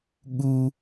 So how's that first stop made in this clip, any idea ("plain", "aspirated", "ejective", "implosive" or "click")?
implosive